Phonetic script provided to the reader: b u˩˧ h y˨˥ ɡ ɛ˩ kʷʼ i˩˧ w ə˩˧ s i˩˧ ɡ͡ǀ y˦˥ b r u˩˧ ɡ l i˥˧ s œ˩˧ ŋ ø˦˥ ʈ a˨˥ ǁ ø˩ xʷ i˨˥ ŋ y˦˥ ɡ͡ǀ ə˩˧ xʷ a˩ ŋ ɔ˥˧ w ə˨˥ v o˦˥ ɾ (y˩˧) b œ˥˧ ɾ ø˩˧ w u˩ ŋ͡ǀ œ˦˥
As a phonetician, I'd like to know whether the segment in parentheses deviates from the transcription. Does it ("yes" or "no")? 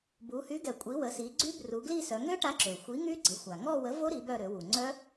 yes